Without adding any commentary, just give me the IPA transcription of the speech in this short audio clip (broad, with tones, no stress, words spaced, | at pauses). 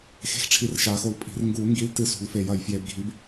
xe̤˨˥xʈ͡ʂʰi˨˩˦r ʃa˨˩˦xo˨˥l pʼi̤˨˩˦r ŋɡuː˨˩˦ŋɡi˨˥ltɨ˨˩˦ sṳ˨˩˦lfe˨˩˦jɐ˨˩˦j fje˨˩˦bɡʱi˨˥b